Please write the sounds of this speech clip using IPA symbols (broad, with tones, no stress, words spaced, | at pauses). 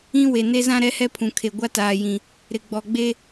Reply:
ĩ˦ we˨ne˦zã˦ ɾɛ˦hɛ˦pʰũ˨kʰe˨ ɡʷa˦taː˨jĩ˨ | ɾɪ˨ɡ͡bɔ˨ɡ͡be˦